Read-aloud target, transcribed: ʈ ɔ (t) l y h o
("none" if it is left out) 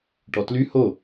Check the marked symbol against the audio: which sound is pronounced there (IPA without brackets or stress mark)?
t